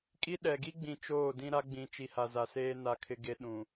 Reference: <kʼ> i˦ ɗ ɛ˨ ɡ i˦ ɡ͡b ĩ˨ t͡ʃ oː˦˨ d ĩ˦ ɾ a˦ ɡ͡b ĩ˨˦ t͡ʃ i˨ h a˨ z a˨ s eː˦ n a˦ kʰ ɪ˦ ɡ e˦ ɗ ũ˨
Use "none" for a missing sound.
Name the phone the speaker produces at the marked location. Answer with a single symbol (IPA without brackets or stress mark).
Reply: kʼ